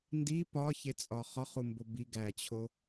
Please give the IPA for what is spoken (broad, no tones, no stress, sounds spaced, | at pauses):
n d i p ɒ ç e t͡sʼ ɒ χ ɒ χ u m b o b i ɡ æ t͡ɕʰ o